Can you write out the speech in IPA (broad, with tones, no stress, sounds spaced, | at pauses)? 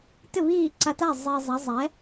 t ɪ˥˩ β iː˥˩ ǀ a˧ t a˥˩ zˤ e˧ zˤ ɛ˩˥ zˤ ɛ˩˥